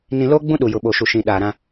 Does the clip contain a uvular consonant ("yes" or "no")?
no